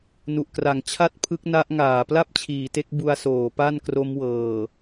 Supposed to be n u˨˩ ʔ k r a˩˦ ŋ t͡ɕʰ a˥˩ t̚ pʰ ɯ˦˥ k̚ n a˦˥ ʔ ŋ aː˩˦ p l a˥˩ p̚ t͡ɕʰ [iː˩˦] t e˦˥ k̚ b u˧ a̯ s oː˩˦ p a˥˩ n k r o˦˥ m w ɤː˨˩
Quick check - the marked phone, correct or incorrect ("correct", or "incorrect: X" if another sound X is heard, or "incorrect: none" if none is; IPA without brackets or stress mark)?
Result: correct